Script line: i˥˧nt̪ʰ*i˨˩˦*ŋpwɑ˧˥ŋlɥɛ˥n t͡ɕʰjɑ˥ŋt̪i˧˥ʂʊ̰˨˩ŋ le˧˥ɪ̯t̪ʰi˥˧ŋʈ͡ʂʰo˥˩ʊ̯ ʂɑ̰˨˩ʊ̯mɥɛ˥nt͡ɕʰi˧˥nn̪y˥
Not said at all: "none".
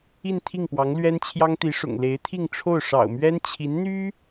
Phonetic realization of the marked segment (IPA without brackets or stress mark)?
i˥˩